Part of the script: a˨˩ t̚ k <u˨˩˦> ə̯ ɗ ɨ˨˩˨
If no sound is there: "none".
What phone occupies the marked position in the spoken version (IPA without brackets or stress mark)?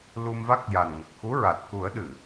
u˨˩˦